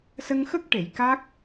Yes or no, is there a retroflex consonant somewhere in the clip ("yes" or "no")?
yes